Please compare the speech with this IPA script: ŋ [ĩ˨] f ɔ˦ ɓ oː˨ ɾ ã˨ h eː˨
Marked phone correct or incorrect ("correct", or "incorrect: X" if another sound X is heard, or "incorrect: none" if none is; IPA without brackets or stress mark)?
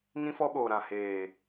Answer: incorrect: ĩ˦